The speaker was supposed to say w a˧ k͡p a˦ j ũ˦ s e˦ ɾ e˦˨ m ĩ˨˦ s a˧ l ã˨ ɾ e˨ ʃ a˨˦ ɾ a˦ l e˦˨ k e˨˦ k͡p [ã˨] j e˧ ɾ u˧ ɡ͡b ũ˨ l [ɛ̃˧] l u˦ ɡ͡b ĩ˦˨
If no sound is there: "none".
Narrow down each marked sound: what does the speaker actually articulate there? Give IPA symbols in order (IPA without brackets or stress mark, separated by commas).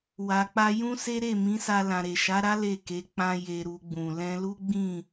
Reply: ã˧, ɛ̃˧